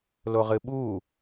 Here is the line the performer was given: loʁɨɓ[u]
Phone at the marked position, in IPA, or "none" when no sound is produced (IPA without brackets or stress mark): u